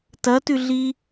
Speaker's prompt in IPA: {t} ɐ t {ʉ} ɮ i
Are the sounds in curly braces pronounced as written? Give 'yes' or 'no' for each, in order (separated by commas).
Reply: yes, yes